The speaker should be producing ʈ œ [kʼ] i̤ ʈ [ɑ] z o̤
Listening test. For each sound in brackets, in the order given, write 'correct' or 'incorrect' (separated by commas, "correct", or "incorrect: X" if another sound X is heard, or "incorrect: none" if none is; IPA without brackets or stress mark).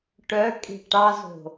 correct, correct